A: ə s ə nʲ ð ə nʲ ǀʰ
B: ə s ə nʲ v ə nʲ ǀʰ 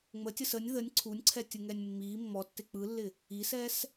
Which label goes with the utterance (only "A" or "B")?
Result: A